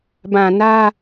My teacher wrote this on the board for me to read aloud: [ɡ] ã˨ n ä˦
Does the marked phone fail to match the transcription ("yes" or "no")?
yes